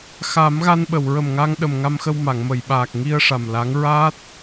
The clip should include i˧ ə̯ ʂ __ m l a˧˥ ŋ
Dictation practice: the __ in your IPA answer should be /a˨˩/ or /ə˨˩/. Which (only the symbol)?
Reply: a˨˩